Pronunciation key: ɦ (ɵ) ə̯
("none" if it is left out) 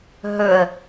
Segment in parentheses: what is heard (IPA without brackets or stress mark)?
ɵ